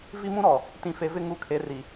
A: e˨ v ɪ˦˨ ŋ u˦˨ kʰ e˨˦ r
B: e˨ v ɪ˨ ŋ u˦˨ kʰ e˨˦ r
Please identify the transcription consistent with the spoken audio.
A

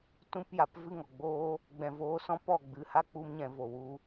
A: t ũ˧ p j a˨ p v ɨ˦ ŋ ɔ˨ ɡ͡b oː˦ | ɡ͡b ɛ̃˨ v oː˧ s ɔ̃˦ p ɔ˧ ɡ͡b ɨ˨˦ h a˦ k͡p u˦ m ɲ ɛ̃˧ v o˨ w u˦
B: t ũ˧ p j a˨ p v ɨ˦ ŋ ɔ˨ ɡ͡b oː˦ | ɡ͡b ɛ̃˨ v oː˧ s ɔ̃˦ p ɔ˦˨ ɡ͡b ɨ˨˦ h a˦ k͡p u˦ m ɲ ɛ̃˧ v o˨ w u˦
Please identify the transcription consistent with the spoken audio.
B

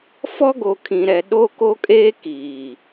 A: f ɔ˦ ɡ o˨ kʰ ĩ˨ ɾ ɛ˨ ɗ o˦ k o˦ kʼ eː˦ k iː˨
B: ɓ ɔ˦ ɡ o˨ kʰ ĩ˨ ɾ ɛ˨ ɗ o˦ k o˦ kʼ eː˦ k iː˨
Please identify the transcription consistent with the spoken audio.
A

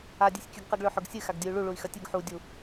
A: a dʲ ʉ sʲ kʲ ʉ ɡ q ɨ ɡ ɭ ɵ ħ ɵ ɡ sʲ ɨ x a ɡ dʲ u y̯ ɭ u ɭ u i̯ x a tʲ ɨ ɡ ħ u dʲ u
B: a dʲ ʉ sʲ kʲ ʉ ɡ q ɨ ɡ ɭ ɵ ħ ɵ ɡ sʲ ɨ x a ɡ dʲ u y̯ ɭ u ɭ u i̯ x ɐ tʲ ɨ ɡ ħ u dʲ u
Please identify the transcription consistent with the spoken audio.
B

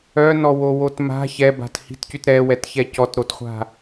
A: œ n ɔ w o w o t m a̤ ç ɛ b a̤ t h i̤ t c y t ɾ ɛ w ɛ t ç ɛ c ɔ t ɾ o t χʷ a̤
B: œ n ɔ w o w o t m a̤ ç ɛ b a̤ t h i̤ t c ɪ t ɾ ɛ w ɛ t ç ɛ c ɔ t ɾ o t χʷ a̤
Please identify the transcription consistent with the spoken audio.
A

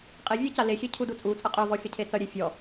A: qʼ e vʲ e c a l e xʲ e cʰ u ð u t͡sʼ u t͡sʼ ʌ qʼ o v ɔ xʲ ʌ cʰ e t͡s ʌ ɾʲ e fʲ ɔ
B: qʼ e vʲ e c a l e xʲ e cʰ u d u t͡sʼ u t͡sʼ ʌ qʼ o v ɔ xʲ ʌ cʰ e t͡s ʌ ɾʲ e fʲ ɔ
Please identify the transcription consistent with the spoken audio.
B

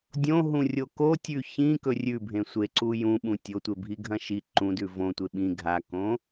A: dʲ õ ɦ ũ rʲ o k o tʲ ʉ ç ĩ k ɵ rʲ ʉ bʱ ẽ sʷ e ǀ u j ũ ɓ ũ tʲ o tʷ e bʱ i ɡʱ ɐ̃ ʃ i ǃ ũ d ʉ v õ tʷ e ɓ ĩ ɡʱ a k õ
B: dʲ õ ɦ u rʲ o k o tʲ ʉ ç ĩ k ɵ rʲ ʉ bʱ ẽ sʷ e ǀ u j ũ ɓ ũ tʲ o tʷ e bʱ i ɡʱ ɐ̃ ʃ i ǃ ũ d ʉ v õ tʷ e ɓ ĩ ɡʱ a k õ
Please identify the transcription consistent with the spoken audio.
A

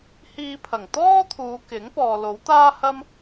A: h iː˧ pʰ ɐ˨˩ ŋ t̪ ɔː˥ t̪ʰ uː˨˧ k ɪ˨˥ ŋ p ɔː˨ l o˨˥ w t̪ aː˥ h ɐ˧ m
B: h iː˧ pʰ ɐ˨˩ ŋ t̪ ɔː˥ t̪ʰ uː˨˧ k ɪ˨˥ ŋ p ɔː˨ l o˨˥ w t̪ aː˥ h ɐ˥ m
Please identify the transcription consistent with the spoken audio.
B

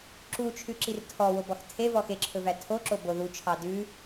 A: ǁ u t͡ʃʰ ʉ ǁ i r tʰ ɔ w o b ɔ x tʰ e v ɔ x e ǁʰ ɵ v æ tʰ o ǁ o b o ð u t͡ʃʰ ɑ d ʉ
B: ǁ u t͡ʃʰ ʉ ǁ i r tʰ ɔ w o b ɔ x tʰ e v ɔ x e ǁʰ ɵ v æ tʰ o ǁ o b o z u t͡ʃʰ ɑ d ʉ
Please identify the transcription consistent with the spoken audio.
A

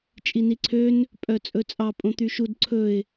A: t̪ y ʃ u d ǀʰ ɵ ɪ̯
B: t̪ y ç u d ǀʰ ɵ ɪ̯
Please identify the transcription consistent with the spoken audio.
A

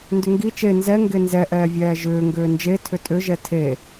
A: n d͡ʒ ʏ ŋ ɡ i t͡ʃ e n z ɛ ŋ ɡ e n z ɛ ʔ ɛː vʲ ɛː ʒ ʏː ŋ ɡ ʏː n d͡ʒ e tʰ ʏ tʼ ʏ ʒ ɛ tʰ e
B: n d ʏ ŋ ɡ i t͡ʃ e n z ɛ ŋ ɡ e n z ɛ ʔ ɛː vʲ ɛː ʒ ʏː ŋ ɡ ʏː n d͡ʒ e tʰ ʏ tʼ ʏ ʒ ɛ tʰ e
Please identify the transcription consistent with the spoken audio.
B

